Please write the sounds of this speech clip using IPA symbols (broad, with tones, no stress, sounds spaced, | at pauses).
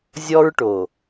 zʲ ɔ˦ ɹ ʈ o˨